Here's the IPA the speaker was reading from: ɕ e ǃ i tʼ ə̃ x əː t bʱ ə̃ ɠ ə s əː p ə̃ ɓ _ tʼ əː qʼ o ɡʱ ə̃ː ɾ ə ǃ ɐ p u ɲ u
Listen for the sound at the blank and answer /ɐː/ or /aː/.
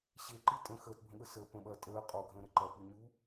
ɐː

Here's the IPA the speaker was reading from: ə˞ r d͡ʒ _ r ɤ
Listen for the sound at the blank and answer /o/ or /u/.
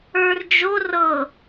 o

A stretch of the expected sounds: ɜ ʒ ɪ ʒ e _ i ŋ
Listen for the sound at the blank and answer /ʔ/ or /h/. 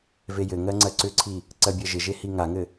h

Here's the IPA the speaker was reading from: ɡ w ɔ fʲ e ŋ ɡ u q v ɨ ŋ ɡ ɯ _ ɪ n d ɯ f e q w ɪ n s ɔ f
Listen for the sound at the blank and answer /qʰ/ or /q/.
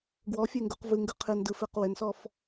qʰ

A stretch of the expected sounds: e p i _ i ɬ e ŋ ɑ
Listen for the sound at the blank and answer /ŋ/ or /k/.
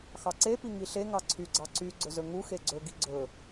ŋ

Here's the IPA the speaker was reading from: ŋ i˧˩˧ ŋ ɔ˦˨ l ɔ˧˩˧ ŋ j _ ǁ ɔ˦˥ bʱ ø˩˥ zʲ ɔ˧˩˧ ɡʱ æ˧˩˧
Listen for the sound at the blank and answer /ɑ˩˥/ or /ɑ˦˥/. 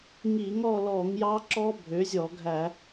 ɑ˦˥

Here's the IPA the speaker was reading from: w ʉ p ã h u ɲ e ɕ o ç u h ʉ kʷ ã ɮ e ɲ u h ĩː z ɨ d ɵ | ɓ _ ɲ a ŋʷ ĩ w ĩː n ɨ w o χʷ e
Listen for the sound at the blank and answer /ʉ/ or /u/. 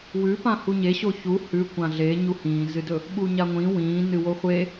u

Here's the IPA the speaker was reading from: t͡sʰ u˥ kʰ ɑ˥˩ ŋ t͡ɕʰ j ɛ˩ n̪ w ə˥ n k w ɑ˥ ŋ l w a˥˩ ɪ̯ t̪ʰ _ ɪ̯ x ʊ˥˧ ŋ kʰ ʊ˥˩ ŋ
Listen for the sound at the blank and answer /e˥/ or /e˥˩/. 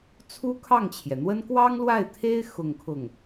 e˥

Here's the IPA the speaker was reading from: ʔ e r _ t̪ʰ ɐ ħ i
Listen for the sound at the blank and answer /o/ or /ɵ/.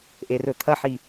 ɵ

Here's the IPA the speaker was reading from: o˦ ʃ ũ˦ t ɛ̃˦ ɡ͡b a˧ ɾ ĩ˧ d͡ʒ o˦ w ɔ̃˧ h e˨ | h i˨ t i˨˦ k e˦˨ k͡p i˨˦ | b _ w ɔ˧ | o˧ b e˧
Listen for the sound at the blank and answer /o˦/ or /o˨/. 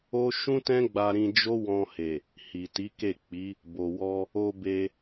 o˨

